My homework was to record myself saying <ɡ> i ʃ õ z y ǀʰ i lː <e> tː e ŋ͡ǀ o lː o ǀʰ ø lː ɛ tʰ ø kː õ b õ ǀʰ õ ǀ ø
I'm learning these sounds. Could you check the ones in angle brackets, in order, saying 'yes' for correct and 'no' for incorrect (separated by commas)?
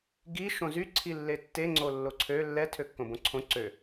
yes, yes